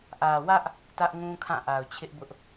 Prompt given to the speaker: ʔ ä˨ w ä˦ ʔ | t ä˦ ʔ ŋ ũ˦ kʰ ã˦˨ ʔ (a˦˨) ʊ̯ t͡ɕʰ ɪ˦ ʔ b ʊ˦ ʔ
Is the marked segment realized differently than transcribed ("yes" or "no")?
yes